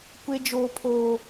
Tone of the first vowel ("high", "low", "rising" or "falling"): high